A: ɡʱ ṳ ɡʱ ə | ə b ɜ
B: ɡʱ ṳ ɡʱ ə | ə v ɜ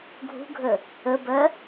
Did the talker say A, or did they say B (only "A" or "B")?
A